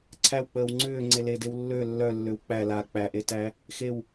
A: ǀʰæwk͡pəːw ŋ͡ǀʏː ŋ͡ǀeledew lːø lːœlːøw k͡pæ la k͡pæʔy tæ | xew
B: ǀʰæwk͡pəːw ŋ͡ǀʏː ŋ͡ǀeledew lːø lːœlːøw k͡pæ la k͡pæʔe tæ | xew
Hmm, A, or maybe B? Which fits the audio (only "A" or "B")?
B